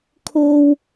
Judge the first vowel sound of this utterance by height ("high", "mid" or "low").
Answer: mid